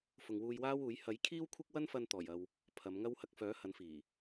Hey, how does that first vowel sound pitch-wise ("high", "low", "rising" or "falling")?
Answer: low